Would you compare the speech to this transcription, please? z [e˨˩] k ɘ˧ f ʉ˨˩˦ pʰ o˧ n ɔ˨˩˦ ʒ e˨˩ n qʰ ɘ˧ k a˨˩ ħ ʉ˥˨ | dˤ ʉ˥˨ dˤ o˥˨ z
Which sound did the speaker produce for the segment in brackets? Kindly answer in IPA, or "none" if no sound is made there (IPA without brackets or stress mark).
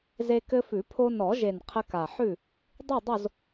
e˧